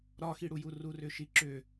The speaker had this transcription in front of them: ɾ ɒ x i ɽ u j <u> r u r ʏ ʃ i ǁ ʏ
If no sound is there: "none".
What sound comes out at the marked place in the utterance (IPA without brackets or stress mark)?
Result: u